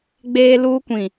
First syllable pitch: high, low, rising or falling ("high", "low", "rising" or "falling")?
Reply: high